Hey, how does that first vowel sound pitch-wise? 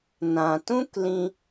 low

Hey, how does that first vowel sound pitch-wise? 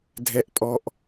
high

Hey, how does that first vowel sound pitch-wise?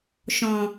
low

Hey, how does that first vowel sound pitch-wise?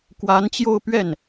rising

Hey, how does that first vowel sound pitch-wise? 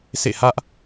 falling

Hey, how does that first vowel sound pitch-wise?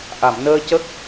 low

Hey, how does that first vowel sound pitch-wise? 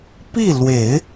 falling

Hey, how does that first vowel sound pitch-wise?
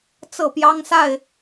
falling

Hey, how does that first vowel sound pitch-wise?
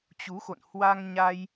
rising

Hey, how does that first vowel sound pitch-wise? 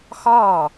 falling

